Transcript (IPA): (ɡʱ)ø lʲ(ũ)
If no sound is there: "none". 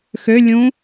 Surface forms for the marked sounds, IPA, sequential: x, ũ

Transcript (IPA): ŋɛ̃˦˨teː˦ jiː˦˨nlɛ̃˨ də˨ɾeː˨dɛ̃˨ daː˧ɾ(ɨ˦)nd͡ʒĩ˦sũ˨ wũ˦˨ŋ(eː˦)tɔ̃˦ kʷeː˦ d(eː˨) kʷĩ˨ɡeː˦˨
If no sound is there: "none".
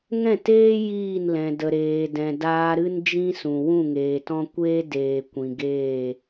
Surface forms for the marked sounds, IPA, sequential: ɨ˦, eː˨, eː˨

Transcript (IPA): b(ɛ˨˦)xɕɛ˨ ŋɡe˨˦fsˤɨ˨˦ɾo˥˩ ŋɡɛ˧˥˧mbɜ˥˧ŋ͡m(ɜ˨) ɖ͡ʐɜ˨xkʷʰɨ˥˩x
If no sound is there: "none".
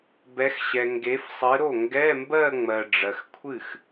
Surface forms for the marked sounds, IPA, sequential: ɛ˨˦, ɜ˨

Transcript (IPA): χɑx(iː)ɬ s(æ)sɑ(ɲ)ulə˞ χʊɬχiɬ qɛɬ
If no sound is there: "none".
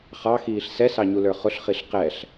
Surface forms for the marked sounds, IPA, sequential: iː, ɛ, ɲ

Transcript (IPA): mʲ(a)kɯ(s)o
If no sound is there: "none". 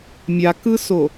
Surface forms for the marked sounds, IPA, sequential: a, s

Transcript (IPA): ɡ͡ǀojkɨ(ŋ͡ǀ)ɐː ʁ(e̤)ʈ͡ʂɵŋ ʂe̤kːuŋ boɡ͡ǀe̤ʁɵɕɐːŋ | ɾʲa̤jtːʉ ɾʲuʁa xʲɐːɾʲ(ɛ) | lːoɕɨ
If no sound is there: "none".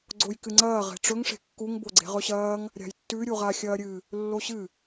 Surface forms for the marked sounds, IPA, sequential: ŋ͡ǀ, e̤, ɨ

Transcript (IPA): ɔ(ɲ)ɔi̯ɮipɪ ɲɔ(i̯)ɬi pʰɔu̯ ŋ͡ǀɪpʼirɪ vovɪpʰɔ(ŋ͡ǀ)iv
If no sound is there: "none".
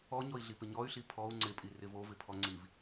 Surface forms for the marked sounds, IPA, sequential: ɲ, y̯, ŋ͡ǀ

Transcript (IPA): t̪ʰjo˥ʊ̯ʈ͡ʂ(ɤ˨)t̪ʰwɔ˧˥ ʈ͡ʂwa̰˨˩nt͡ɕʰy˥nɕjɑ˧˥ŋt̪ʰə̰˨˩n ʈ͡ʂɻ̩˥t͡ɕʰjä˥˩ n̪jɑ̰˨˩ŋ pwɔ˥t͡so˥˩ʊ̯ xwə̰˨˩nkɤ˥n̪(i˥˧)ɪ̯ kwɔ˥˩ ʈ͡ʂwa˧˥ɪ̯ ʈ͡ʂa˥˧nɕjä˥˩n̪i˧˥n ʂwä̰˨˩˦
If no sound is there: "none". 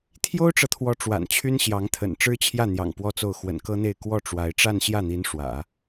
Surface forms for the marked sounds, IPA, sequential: ɤ˨, e˥˧

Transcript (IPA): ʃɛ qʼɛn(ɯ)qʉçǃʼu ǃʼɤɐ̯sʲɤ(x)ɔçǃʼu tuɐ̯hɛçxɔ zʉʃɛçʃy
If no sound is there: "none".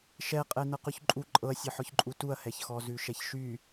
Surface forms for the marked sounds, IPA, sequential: ɤ, ħ

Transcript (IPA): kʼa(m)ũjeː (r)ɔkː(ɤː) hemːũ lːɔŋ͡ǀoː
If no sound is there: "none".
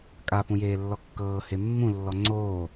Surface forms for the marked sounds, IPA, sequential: p, lː, ɤː

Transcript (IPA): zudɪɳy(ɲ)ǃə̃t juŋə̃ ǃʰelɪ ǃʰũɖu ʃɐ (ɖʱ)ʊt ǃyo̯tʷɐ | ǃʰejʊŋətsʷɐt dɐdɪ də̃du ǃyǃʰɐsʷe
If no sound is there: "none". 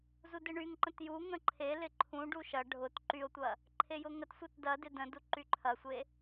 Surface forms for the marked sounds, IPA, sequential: ŋ, ɖʱ

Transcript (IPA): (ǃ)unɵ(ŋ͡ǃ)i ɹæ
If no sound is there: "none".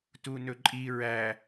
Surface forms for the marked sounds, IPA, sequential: t, ǃʼ

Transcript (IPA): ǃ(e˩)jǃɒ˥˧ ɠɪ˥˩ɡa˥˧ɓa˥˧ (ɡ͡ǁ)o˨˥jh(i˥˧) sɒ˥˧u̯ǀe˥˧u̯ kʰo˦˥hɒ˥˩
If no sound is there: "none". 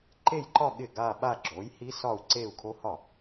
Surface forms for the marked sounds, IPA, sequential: e˥˧, ɡ͡ǁ, i˦˥

